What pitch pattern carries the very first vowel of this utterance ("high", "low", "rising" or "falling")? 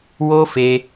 high